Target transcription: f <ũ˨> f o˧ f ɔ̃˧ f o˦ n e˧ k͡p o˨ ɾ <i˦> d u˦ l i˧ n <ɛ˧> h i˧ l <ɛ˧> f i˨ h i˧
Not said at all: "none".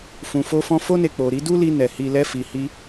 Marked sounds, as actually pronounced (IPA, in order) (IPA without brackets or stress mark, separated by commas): ũ˨, i˨˦, ɛ˨, ɛ˧